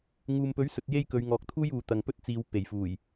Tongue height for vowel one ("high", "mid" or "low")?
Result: high